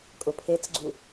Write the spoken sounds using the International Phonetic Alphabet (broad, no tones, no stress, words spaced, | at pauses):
kʼʊpʰet͡sɡ͡ǀu